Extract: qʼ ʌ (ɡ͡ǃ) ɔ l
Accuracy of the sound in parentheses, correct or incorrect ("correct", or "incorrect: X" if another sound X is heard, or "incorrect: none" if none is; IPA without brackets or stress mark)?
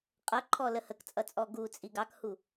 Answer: incorrect: ǃʰ